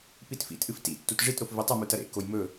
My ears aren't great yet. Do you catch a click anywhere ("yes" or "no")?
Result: no